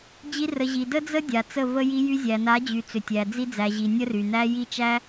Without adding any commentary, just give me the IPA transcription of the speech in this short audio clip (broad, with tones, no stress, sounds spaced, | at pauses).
d͡ʑ i˧ r ə˨ ʑ i˨ d ə˦ d͡z ə˦ dʲ a˨ t͡s ə˦˨ v ə˧ j i˧ j y˧ zʲ æ˨ n a˨˦ d͡ʑ y˨ t͡s ʏ˨ tʲ æ˨ d͡z i˧ d͡z æ˨ ʑ i˨ nʲ ə˦ r y˨ n æ˦ j i˦˨ t͡ʃ æ˦